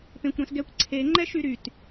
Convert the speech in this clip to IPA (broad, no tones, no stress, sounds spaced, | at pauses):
p ẽ kʷ ɾ ɛ̃ s ɡ ɛ kʷ ǀʰ e ŋ͡ǃ ɛ ʃ y ɾ y t